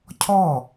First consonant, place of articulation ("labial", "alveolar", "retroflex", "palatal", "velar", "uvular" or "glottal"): palatal